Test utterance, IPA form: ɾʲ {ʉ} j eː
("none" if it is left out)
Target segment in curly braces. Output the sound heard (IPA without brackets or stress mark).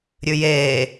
ʉ